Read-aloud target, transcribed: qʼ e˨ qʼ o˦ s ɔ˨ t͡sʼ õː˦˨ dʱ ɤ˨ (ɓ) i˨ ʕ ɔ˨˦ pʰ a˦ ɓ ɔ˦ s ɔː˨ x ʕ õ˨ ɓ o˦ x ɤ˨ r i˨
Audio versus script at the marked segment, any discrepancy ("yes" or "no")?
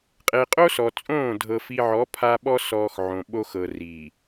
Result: yes